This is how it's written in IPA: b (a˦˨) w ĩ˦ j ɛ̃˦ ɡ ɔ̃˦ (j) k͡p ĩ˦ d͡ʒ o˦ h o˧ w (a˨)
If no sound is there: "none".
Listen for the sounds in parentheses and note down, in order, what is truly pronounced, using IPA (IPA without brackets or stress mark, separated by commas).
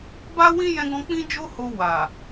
a˦, none, a˨